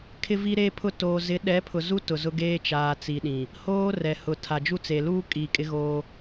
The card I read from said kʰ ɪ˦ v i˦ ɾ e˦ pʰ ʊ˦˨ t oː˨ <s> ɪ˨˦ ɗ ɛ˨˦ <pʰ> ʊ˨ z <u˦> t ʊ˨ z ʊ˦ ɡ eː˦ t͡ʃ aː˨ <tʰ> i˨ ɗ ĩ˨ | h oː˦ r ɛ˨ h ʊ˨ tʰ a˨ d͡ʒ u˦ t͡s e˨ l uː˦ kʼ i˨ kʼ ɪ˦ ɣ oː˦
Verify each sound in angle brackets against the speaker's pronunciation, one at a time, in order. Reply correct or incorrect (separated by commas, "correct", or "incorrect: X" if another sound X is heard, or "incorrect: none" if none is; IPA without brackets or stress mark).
incorrect: z, correct, correct, incorrect: t͡s